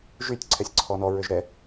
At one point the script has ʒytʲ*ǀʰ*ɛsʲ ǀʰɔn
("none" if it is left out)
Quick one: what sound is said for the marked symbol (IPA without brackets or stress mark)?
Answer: ǀʰ